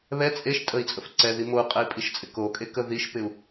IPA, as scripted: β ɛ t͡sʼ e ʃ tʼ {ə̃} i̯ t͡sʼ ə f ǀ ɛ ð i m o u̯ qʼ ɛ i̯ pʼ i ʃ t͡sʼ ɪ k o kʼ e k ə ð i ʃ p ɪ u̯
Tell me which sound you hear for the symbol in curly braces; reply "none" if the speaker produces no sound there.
ə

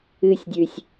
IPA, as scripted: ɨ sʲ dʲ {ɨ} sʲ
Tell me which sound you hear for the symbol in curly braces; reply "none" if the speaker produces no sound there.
ʉ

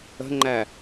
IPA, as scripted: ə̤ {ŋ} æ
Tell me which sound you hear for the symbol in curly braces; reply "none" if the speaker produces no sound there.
ŋ͡ǃ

